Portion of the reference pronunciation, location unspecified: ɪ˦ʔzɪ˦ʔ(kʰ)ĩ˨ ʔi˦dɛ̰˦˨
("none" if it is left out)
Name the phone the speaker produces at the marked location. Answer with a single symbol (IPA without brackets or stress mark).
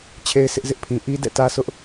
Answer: pʰ